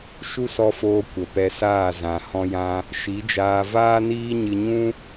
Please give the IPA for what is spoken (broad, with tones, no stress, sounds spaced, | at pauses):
ʃ u˦ s ɔ˧ f oː˧ kʷ ə˨ p ɛ˧ s aː˦˨ z ã˨ h ɔ̃˧ j ã˧ | ʃ i˨˦ d͡ʒ aː˧ v aː˦ n iː˦ ɲ ɨ˧ ɲ ũ˦